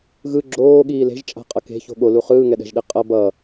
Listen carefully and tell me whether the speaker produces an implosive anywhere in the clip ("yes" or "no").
yes